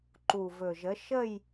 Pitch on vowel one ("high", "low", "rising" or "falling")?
low